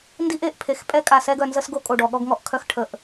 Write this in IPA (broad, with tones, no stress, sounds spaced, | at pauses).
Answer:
n d i˦ ʔ e˦˨ ʔ pʰ e˨ x pʼ ɛ˦ kʼ a˨ s ɛ˦ ɡ œ˨ n z ə˦ s ɡ o˦ kʼ o˨ ɖ ɔ˨ ɠ ɔ˦ ɡ ŋ ɔ˨ ʔ kʰ œ˦ x ʈʰ ə˨ ʔ